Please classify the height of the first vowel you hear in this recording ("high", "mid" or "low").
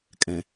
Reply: mid